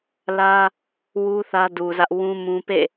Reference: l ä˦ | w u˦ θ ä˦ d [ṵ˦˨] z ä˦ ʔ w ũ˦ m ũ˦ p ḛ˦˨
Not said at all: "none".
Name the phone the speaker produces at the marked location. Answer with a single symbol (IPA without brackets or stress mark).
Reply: u˨